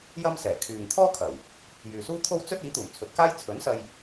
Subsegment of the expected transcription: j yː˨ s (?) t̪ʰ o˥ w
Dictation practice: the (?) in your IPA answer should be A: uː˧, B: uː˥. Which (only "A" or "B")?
B